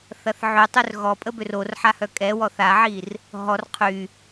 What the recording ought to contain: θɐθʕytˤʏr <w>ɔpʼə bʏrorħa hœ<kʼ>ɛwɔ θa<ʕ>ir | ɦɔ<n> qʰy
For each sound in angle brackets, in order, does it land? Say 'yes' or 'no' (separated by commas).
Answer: no, yes, yes, no